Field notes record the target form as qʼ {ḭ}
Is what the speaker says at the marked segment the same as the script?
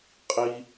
no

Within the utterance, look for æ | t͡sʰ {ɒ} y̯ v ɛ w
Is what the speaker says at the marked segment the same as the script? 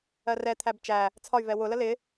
yes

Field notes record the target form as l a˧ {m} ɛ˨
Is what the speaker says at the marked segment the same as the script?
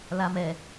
yes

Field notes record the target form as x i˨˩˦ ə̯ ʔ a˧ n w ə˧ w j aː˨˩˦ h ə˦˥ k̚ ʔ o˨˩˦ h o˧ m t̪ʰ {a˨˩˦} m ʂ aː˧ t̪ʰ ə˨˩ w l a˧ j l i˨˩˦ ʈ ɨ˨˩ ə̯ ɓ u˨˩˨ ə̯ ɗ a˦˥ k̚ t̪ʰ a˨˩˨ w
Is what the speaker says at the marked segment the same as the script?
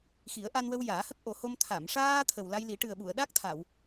no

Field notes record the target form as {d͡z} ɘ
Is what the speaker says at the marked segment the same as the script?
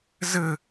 no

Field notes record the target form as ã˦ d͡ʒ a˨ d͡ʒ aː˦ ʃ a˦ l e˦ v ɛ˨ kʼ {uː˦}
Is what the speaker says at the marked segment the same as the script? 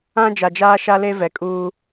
yes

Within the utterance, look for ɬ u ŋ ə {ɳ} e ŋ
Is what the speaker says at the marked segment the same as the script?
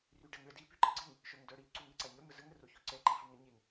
no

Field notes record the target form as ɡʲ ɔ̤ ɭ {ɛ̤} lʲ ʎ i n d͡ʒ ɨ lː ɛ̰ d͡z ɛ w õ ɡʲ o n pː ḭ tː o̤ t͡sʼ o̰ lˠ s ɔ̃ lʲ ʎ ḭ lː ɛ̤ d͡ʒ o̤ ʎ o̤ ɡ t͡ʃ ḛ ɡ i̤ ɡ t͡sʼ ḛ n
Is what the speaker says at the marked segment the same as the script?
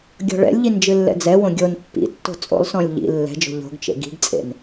no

